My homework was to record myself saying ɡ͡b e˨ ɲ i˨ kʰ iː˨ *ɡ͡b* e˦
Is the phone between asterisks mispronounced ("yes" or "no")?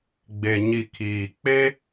yes